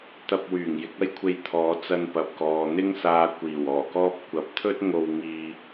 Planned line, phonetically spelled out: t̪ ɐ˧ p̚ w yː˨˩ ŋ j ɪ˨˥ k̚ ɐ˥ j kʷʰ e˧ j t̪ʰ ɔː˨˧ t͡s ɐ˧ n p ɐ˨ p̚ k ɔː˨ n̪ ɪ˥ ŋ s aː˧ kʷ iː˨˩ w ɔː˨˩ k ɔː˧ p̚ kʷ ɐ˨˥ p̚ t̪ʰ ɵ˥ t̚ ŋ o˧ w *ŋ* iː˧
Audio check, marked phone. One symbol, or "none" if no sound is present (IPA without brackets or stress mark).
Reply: ŋ